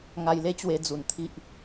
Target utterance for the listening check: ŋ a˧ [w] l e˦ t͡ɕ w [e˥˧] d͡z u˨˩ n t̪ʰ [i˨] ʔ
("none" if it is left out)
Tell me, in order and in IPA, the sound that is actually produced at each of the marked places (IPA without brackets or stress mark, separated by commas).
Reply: j, e˧, i˦